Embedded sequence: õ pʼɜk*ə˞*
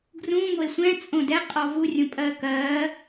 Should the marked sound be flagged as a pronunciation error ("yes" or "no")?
yes